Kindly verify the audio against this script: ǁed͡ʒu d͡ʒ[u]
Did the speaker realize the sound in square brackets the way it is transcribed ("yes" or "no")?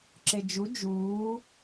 no